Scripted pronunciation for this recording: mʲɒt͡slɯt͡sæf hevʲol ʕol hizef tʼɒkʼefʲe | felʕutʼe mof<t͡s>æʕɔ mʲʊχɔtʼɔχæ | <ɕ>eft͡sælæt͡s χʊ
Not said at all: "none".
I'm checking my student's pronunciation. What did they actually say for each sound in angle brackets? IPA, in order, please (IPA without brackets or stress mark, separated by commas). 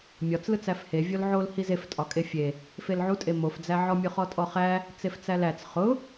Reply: d͡z, t͡s